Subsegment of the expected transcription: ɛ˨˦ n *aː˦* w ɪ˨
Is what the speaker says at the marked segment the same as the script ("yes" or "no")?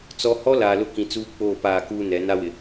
no